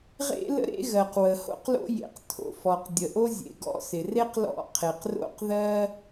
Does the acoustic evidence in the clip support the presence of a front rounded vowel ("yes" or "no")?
no